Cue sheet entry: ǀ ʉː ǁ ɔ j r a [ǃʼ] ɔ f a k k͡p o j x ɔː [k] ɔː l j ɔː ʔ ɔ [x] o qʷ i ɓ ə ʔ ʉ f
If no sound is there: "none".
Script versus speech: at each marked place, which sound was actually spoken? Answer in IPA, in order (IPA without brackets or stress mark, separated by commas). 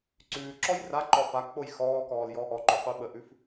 ǃ, k, ǃ